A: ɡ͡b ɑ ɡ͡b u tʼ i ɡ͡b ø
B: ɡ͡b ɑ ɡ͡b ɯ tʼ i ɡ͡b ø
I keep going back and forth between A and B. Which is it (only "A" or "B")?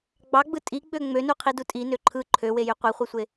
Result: B